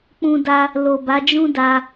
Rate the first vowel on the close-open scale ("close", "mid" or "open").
close